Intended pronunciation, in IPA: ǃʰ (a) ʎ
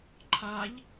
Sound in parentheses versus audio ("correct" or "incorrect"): correct